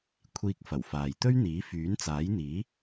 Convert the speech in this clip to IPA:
kʷʰ iː˧ k̚ f ɐ˨˩ w f aː˨ j t̪ ɵ˥ ɥ n̪ iː˨˥ f yː˨˥ n t͡s aː˨˥ j n̪ iː˨˥

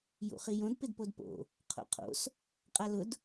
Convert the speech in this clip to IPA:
j ṵ χ i j õ d p ɪ d p o d p o̰ | qʰ o̰ qʰ o̰ s | qʼ a l ʊ d

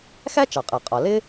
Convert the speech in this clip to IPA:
x æ˥ t͡ʃ ɑ˩ qʼ ɜ˩ qʼ ɒ˩ l ɪ˥

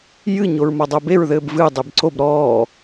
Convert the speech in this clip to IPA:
j ɨ ɲ o ɹ m ɔ dˤ o b e ɹ ð ɘː b v ɨ dˤ e b ǀ o b ɾ ɔː

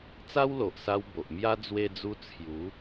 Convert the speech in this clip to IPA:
t͡s a˦ w l o˨ ʔ s a˧ w b o˨ ʔ m j a˦ d͡z w e˧ d͡z u˧ t͡sʰ j u˨˦

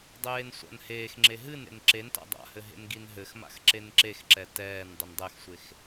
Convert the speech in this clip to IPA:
dˤ eː n sʷ a̰ n h eː x ŋ͡ǁ e ɦ ɨ n ḛ n ǁ e n t a̰ dˤ a̰ h ɘ ɦ ḛ n ɡ i n ɦ ɘ x m a̰ x ǁ e n ǁ e x ǁ ɛ t ɛː n dˤ ɘ n dˤ ɛ x sʷ e x

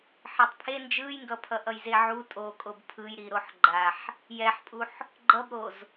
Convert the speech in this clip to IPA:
ħ i tˤ pʰ e n d͡ʒ ɯ j ŋ ɡ ʌ pʰ ʌ ʔ ʌ j z e ʕ u tʼ o kʼ o b pʰ ɯ j ɾ i ɾ o ħ ɡ͡ǃ a ħ | j ɛ ħ pʼ u ħ | ɡ͡ǃ ʌ b ɾ o z

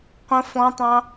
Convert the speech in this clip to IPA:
qʷ ə̃ f ɔ̃ tˤ ɑ̃

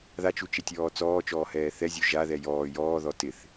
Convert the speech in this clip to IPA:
ð a t͡ʃ u t͡ʃ ɪ tʲ ɔː t͡s ɔː t͡ʃ ɔː h ɛː θ ɛ zʲ u ʒ a ð ɛ j ɔː j ɔː ð ɔ t ɪ θ

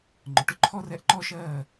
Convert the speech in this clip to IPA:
ŋ͡ǃ ʊ˨ ʈ ʊ˦ ǃʰ ɔ˦ r ɛ˧ ʔ ǃ ɔ˦ ʃ ɜː˦˨

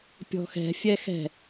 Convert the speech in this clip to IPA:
pʲ ɔ̤ x ɛ̤ fʲ ɛ x ɛ̤

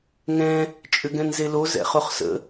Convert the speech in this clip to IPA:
ŋ ɛ̃ | t͡ʃʼ ʏ ɡ ɛ̃ n z e l o z ɛ̰ χ o χ s ə̰

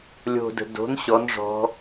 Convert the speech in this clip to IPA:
lʲ o̤ d ə̤ d o̤ n ɕ ɔ n ʐ ɔ̤

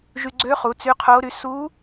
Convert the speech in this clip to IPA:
ʒ y˧ ɡ͡ǀ ø˧˥ χ u˩˧ t͡s y˧˥ qʰ o˧˥ ɾ y˧˥ s u˧˥

